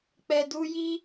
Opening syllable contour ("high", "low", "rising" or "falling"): low